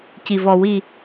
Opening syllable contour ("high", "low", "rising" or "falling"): low